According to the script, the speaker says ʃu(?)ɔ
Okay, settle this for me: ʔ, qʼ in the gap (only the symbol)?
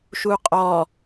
qʼ